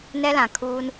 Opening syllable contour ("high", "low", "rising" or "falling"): high